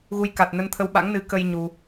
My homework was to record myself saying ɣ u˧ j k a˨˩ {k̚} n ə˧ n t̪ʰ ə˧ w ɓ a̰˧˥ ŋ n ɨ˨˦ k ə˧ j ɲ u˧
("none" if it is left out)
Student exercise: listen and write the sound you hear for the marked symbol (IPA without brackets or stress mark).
t̚